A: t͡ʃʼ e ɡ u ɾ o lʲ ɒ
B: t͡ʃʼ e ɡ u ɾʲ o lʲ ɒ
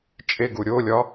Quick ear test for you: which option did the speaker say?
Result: B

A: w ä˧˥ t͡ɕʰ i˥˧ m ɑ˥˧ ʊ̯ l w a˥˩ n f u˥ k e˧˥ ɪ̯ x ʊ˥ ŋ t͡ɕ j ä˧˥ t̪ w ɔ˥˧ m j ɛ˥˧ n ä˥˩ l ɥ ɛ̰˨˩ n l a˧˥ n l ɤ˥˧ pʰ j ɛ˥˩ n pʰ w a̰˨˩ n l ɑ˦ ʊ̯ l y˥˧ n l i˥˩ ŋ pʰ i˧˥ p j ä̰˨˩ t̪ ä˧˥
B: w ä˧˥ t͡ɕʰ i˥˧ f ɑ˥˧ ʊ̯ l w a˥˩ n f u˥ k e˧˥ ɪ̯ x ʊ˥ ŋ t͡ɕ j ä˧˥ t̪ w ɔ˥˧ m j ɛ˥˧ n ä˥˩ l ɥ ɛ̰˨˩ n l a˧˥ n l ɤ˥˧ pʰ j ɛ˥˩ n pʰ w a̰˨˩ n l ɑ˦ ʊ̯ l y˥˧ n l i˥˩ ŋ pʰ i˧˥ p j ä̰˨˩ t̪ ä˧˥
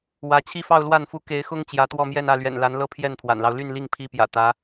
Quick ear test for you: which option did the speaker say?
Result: B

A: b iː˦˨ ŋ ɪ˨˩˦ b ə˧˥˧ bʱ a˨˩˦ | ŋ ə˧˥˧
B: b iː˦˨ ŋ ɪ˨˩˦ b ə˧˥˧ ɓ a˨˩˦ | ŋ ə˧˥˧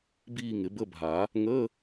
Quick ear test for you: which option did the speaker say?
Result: A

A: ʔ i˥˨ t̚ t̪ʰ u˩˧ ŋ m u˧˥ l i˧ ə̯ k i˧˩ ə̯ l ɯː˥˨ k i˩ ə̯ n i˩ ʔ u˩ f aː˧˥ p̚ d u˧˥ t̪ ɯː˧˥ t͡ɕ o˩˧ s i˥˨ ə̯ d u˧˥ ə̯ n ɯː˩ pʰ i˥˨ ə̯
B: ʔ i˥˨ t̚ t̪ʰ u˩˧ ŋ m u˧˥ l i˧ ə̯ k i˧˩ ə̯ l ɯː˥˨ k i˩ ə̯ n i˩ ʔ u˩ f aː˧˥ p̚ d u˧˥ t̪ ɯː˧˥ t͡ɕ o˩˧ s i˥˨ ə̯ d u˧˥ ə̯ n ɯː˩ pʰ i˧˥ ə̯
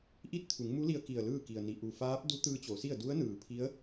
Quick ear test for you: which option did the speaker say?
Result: B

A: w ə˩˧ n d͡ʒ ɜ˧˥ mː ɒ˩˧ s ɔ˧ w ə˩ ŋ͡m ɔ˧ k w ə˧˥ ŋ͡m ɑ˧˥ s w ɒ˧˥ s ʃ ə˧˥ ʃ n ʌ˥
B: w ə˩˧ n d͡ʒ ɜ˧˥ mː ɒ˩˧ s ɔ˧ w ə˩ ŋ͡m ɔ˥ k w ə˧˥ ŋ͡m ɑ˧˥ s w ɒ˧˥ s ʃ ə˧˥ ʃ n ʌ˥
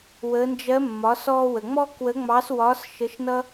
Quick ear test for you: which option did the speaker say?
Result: B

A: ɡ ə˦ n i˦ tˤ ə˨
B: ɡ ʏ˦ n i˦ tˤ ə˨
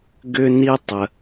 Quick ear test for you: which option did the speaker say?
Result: B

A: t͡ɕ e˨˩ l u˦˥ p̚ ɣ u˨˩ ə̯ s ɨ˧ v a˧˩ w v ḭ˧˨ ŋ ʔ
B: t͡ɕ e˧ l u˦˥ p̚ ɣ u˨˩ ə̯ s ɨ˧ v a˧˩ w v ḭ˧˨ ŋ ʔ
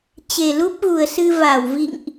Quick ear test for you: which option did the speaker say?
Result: A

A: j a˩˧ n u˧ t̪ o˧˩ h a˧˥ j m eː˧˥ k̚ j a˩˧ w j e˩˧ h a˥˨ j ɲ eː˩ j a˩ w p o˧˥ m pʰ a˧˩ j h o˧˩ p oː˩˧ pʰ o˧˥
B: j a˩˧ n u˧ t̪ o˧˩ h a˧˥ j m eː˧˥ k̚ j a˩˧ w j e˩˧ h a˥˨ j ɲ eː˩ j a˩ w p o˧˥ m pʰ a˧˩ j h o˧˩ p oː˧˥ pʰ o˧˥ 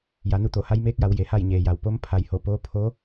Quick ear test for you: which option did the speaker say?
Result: B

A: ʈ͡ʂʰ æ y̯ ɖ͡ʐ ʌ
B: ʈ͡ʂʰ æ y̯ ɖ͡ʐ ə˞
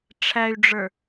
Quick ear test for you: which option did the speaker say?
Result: B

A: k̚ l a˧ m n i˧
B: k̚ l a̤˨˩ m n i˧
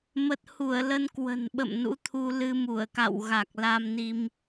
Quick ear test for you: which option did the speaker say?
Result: A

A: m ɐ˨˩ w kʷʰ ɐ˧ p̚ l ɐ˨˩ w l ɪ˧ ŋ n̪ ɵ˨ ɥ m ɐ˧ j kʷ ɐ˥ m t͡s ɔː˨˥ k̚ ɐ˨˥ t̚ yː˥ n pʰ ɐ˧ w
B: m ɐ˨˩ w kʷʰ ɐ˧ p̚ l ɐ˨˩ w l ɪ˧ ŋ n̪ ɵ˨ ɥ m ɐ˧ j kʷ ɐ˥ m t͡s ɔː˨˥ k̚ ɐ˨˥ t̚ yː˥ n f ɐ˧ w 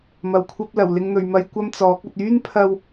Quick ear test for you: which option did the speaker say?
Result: A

